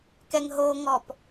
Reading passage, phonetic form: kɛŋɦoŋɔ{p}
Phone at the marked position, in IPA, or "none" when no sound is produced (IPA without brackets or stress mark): p